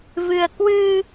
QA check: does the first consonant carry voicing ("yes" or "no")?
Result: yes